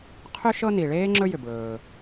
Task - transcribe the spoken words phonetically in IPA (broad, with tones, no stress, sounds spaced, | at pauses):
qʰ ʏ˥ ʃ ɤ˥ n i˩ ɭ eː˥ ŋ͡ǁ ɵ˥ j ʏ˩ b ɭ ɵː˩